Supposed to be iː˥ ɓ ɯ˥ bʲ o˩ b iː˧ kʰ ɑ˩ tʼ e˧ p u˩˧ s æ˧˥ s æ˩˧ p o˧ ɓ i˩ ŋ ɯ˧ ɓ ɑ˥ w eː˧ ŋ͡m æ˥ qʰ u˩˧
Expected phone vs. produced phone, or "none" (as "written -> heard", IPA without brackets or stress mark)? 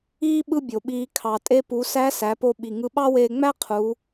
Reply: b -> ɓ